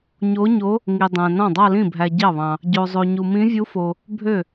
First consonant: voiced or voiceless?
voiced